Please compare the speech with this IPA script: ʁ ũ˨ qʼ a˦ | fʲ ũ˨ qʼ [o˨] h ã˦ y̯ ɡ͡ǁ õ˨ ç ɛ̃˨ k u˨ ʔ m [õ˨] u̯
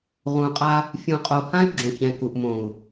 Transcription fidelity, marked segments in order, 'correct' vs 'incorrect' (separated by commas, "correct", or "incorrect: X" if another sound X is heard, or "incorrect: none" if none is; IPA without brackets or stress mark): correct, correct